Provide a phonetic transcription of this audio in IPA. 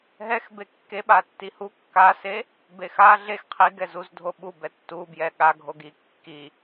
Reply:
ɦ ɛ x b e kː e ɓ a tː i h u kː a s e | b e x a ɮ e x qʰ i ɡ ɛ z u z dʱ o ɓ u b ɛ tː u b j ɛ ɠ a ɡʱ o ɡ i kː i

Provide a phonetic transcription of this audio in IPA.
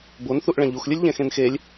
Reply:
b o n θ u ʔ ɭ ɛ̃ ʎ u x lʲ ɨ lʲ ʎ ɛ̃ x ẽ n x e lʲ

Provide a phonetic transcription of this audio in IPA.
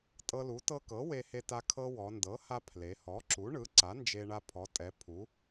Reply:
tʼ ɤ˧ l u˩˥ t ɤ˧ k ɤ˩˥ w e˧ h e˧ t a˧ kʰ ɤ˧ w ɔ˩˧ n d ɤ˩˥ h a˧ pʰ l e˩˧ h ɔ˩˥ ǁ u˩˥ ɳ ɯ˩˥ ǀ a˩˥ n d͡ʒ e˧ ɳ a˧ pʰ ɔ˩˧ tʼ ɛ˩˧ pʰ u˩˧

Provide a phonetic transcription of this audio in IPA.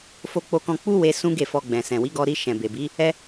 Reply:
f o˧ k͡p o˧ k ɔ̃˧ k͡p u˦ w e˧ s ũ˦ ɡ e˦˨ f ɔ˧ ɡ͡b ɛ̃˨ s ɛ̃˨ w i˨˦ ɡ ɔ˧ ɾ i˧ ʃ ɛ̃˨ b e˨ b i˨˦ | ɛ˧

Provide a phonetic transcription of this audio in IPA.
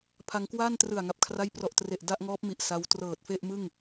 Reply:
pʰ a˧ ŋ k w aː˥˩ n t r ɯ˨˩ a̯ ŋ a˨˩ p̚ kʰ r a˥˩ j p r ɔ˨˩ ʔ t r e˨˩ ʔ d a˥˩ ʔ ŋ ɔː˦˥ p̚ m i˨˩ ʔ s a˦˥ w t r ɤː˨˩ t̚ f e˥˩ ʔ m ɯ˥˩ ŋ

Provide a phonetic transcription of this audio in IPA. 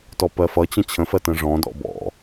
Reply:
t ɔ p ɜ f ʌ t͡ɕ ə̃ t͡ɕʰ ə̃ f ɜ t ə̃ ʐ ɔ̃ d ɔ̰ b ɔ̰

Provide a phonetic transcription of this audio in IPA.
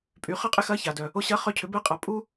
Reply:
pʼ y˩˧ χ ɐ˥ qʼ ɪ˥ x ɐ˧˥ ç a˩ d œ˩ | o˧ ɕ ɐ˧˥ χ œ˧ cʰ ʏ˩˧ b ɛ˧ qʼ a˩˧ pʼ u˥

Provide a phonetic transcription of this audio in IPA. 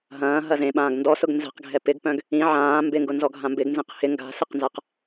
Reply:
ɦ ɐ̃ː ɦ ɐ z ẽ ɓ ãː ɡ n d ɔ s ʊ ɡ n z ɛ̤ q ɡʱ ɛ p ɪ ɡ p œ̃ ɡ | ĩ ʕ ãː m b ɪ ŋ ɡ ʊ n z ɔ ɡʱ ã m b ɪ ɡ n z ẽ q h ɪ ŋ ɡ a̤ s ɪ q n z a q

